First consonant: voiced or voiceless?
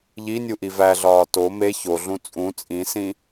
voiced